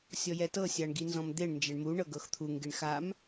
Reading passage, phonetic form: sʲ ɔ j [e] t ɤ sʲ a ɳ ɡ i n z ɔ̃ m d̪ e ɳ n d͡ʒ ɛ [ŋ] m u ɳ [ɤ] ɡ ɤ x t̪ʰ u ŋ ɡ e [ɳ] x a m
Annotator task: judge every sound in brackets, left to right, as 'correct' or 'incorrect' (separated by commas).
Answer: incorrect, incorrect, correct, correct